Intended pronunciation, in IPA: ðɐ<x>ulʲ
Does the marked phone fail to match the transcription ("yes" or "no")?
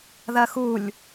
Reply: no